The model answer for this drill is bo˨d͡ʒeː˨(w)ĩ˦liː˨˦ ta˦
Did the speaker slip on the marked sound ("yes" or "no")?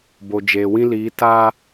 no